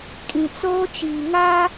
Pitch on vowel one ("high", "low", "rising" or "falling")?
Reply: low